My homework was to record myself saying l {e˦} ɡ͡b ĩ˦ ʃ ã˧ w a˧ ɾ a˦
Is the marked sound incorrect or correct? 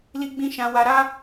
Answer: incorrect